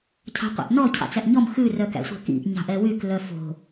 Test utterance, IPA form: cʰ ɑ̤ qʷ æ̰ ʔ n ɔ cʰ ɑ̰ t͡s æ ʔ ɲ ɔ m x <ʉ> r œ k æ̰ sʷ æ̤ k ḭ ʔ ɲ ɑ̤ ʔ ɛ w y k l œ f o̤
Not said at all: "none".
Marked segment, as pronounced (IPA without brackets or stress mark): ʉ